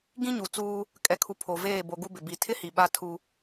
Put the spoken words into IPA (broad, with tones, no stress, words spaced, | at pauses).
ɡĩ˦ɲu˨t͡suː˦ | kʼɛ˨kʰu˨ pʰo˨veː˦˨ bo˨ ɡu˦bɪ˨bi˨˦ tʰɪ˦hi˨ ɓa˦tʰu˦